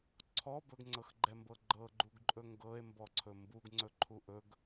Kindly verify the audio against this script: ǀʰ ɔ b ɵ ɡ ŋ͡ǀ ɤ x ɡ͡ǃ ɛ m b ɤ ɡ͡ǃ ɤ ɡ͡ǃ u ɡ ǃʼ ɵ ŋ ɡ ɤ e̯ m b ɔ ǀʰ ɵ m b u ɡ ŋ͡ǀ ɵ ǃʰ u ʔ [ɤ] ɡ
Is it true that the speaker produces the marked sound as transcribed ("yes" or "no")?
no